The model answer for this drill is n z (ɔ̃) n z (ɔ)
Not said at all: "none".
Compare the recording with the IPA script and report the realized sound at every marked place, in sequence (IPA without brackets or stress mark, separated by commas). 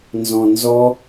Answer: ɔ̃, ɔ